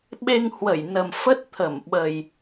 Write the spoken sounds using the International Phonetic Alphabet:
ɓ e˧ ŋ h w ə˧˩ j n ə˨˩ m f ə˦˥ t̚ t̪ʰ ə˧˩ m ɓ ə˨˩ j

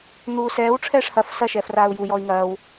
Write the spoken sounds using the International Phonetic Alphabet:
n̪ uː s ɛː w ʈ͡ʂʰ ɛː ʂ h ɐ f s ɐ ʃ ɛː f r aː u̯ j u j ɔ i̯ ŋ ɐː w

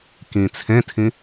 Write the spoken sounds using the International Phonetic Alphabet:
k ĩ t͡sʰ ẽ tʰ ĩ

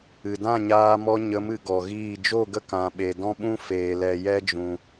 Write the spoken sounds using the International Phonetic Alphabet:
ɨ˨ d ã˦˨ ɲ aː˧ m ɔ˧ ɲ ə˨˦ m ɨ˨ ɡ ɔ˨ ɣ iː˦˨ d͡ʒ o˦˨ ɡ ə˦ k ã˧ ɓ e˨ d ɔ̃˦ ɓ ũ˦ f eː˨ l ɛ˨ j ɛ˦ d͡ʒ ũ˨

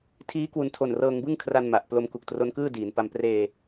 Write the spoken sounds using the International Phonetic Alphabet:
tʰ iː˦˥ k w u˨˩ n tʰ o˨˩ n r ɤː˧ ŋ b ɯ˥˩ ŋ kʰ r a˧ n m a˨˩ ʔ p l o˧ m k u˨˩ k̚ t r o˦˥ n k ɯː˥˩ d iː˩˦ n p a˧ m p r eː˧

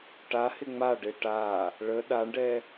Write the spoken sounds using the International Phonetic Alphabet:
ʈ a h ɪ ŋ͡m a ɖ e ʈ a | ɭ ə ɗ a ɳ ɖ ɛ

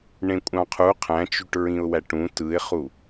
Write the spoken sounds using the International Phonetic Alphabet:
ɳ ẽ kʷʼ ɑ̃ qʰ u qʰ æ̃ t͡ʃ y ʈ ɹ ĩ ʊ̯ w æ ʈ ũ t ɯ ɪ̯ χ u

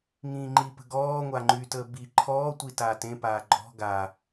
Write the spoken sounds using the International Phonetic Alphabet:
ŋ ĩː ŋ͡ǃ i p ə̤ ɡ ɔː ŋʷ a ŋ͡ǃ y t əː b i ǃʰ ɔː tʷ i t aː t ẽ p aː ɡ͡ǃ ɔ̤ ɡ a

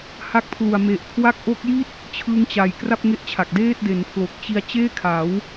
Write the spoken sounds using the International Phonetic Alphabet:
h a˥˩ k̚ pʰ l u˨˩ a̯ m e˨˩ ʔ kʰ w a˥˩ k̚ ʔ o˦˥ k̚ j i˥˩ t̚ | t͡ɕʰ ɯː˦˥ ŋ t͡ɕ a˨˩ j k r a˥˩ p̚ ŋ e˥˩ ʔ t͡ɕʰ a˨˩ k̚ d eː˥˩ t̚ d e˩˦ n pʰ l o˨˩ k̚ t͡ɕ i˦˥ a̯ t͡ɕ eː˥˩ kʰ a˩˦ w

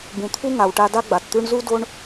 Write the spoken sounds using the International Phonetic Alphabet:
b ũ˨ t̪ʰ u˦ ŋ a˨ w ʈ a˧ d a˦ ɡ͡b a˨ t t̪ ʉ˦ ɳ z u˦ d o˦ ɳ

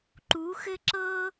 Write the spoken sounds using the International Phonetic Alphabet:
ǃ u˨˦ x ɘ˦ ǁ ɤ˦

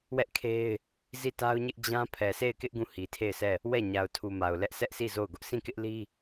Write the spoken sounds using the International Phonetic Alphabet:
w ɛ˦ ʔ kʰ e˦ ɪ̯ | z i˦˨ t a˦ ʊ̯ ɲ ɪ˦ ʔ d͡ʑ ã˦ pʰ ɛ˨ s e˦˨ ɪ̯ k ɪ˦ ʔ ɡ ũ˦˨ h i˨ tʰ e˦˨ ɪ̯ s ɛ˦˨ | w ɛ˦˨ ɲ a˨ ʊ̯ tʰ u˨ m a˨ ʊ̯ l ɛ˦ ʔ s ɛ˦ ʔ sʰ i˦˨ z o˦˨ ʊ̯ ɡ ʊ˦ ʔ s ĩ˦˨ k ɪ˦ ʔ l i˦

